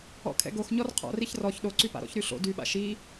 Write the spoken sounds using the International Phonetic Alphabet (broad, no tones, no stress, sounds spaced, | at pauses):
ɔ̰ kʰ ɛ̰ ɡ o x ɲ ɔ r qʰ ɔ̰ r i ç r ɔ ç ɗ o ǀ y p a̰ ɾ ɔ̰ ç ɾ y ɬ o̰ d y ɓ a̰ ʃ i